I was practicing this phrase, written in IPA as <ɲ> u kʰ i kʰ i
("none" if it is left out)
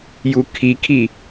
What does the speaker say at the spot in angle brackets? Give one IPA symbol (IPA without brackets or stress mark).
j